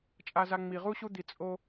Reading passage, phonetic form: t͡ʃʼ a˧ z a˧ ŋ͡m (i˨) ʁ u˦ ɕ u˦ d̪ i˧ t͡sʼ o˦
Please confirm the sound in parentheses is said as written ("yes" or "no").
yes